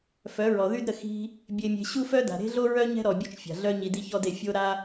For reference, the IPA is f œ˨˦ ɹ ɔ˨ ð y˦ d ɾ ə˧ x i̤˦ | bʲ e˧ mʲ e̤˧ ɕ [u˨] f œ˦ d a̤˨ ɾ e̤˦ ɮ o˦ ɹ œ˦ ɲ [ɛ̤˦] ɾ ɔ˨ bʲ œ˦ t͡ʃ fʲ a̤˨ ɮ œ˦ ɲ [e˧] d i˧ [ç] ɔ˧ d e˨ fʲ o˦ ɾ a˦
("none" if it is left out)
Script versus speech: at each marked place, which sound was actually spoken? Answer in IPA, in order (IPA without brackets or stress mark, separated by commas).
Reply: u˦, ɛ̤˦, i˧, ç